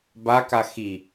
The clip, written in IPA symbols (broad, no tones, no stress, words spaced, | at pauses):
baka xi